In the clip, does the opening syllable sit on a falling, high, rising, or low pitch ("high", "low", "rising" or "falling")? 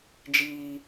high